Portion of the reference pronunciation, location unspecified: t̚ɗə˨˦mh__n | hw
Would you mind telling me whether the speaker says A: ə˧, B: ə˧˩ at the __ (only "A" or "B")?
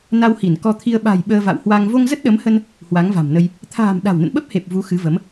A